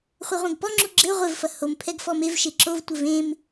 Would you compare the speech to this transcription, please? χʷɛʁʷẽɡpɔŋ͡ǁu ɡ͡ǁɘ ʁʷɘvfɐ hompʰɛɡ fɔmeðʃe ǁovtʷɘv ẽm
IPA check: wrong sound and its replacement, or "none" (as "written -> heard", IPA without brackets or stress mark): ð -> v